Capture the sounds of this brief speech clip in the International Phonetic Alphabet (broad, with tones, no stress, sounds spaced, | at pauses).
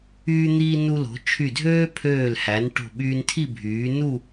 yː˧ n̪ iː˧ n u˧ l o̤˩˧ t͡ʃʰ y˧˩ dʱ øː˥ pʰ øː˧˩ l h æ˩˧ n ʈ o̤˧˩ ɓ yː˧ n tʰ i˥˧ bʱ yː˩˧ n u˥˧